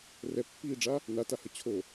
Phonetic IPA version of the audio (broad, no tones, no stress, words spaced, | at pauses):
rɛpːiːɖ͡ʐa | natahə t͡ɕʰo